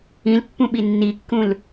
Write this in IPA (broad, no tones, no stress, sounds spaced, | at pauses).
ĩ l pː ũ ɓ i nː i kː ũ l